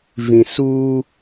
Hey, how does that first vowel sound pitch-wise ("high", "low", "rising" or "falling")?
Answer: low